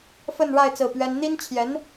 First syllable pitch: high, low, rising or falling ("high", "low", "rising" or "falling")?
falling